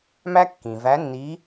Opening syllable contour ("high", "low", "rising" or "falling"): high